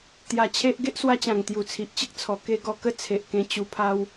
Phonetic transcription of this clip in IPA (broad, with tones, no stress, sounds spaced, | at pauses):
t̪ j a˨˩ t͡ɕʰ e˦ ʔ ɡ e˦ ʔ s w a˧ t͡ɕ ã˨˩ ŋ t̪ j u˨˩ t͡sʰ i˨ ʔ t͡ɕ ə˦ k̚ t͡sʰ ɔ˨˩ k e˦ ɡ ɔ˧ k ə˦ t͡sʰ e˨ ʔ k ẽ˧ t͡ɕ u˧ pʰ a˦ w